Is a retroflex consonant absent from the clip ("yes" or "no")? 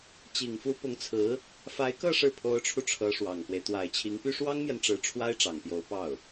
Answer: no